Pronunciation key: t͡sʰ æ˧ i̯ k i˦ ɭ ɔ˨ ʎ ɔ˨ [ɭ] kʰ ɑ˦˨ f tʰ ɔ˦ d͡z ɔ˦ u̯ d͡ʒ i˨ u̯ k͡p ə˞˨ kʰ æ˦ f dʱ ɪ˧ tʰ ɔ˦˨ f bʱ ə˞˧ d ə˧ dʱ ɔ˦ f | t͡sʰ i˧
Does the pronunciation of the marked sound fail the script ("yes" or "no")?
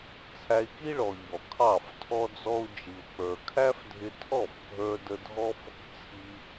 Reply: yes